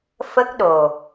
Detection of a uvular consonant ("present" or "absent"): absent